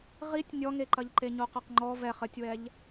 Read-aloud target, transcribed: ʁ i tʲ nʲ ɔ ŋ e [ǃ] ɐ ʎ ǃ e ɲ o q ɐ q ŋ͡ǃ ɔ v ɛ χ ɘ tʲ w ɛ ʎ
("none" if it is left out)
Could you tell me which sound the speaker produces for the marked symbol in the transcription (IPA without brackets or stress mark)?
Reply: ǃ